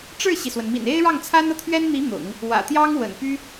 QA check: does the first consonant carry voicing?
no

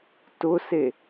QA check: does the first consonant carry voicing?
no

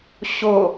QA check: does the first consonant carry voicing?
no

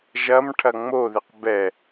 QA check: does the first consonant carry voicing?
yes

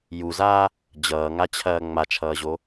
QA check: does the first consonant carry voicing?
yes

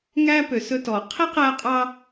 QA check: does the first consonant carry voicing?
yes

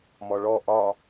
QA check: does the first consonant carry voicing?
yes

